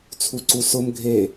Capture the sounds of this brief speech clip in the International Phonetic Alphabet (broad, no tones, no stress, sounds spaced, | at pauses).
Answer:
t͡sʰ u ǀ u s ʊ m ɡʱ e